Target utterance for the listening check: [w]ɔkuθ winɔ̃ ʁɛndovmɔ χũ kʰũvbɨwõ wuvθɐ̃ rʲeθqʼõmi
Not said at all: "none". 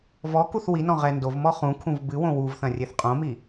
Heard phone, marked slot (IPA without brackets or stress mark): v